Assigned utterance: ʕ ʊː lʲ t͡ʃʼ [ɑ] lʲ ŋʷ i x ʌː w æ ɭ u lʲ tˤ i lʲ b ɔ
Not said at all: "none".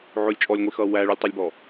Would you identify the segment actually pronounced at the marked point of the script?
ɔ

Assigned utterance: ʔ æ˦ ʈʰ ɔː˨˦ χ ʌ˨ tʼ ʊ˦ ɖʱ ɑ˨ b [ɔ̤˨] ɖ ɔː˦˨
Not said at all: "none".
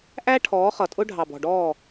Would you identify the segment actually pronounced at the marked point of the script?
ɔ̤˨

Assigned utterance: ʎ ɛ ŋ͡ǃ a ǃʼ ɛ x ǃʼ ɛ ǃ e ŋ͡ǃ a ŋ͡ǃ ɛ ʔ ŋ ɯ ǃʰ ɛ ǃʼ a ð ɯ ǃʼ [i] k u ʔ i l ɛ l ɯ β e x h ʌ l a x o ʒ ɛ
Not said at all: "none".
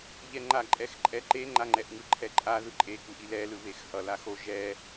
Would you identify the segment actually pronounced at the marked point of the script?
e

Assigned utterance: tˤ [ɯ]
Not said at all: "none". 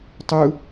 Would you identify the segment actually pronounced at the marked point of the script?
ɯ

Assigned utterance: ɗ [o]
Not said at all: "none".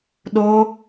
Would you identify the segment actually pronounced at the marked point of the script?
o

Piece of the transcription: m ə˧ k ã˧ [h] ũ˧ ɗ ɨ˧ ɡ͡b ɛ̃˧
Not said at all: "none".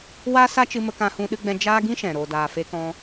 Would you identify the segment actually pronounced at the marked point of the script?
h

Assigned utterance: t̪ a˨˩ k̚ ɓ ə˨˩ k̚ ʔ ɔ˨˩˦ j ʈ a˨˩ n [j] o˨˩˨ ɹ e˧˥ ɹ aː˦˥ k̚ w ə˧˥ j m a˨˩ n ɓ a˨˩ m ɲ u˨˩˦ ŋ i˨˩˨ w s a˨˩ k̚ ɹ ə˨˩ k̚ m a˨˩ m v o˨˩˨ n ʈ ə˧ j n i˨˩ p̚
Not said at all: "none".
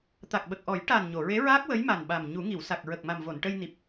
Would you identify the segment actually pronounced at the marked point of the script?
ɲ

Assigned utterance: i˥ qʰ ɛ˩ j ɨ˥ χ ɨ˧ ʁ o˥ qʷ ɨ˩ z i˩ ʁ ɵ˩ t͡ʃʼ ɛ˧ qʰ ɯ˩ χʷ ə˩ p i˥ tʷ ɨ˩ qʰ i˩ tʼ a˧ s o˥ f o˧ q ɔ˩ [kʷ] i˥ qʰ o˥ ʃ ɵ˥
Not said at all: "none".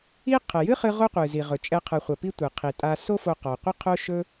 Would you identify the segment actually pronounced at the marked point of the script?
qʷ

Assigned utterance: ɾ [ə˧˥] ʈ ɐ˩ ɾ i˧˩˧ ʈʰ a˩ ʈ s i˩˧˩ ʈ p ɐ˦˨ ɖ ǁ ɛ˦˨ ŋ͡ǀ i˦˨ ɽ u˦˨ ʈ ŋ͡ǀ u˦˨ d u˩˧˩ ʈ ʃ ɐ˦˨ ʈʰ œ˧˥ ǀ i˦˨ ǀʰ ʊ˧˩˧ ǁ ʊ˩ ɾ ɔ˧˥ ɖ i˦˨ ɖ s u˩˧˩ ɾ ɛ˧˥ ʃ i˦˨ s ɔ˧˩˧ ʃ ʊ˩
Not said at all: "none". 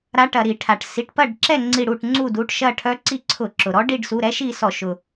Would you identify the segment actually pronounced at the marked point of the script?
a˧˥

